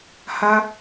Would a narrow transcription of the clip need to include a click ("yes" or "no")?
no